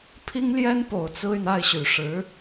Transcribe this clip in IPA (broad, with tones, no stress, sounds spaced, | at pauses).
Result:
pʰ i˥ ŋ l j ɛ˥ n p o˨˩ ʊ̯ t͡s ɹ̩˥ y˨ n a˥˩ ɪ̯ ɕ y˨˩ ʂ ɻ̩˧˥